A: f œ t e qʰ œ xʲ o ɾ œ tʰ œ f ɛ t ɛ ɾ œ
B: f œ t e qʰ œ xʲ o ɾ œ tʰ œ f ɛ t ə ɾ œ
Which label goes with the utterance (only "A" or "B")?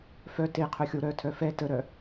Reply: B